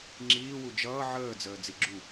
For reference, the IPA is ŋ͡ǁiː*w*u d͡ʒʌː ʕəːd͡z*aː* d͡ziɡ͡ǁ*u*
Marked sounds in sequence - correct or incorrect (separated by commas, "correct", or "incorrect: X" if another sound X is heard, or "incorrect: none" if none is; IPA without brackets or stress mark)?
correct, incorrect: əː, correct